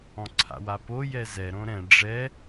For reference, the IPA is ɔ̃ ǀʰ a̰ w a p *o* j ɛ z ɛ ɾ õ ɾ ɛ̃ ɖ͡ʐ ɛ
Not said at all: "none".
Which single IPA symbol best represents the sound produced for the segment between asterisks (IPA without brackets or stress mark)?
o